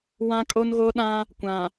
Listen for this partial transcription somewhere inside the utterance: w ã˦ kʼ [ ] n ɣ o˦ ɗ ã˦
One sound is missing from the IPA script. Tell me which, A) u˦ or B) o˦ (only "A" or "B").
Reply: B